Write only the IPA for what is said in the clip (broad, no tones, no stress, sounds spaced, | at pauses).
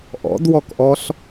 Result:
ʔ ɔ̰ d w ɔ k ʔ ɔ ɬ